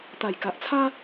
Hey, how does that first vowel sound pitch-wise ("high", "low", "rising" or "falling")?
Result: low